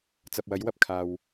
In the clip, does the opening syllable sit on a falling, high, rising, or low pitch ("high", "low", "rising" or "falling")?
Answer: low